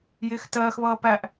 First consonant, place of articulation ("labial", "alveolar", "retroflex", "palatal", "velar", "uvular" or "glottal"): palatal